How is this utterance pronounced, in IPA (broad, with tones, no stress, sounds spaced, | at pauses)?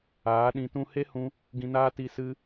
aː˨˦ ɗ ĩ˧ t ũ˧ h e˦ h ũ˧ | ɡ ĩ˧ n aː˦ t i˧ s ɨ˦